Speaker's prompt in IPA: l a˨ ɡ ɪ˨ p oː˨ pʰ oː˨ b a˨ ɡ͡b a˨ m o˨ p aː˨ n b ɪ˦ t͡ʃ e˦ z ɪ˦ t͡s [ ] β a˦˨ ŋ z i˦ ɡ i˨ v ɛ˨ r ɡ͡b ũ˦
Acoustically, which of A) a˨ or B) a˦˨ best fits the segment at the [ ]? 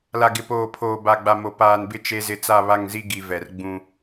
B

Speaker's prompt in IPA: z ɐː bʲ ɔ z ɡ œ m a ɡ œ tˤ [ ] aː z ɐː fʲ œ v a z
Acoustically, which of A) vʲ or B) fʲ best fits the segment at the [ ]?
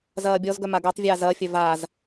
A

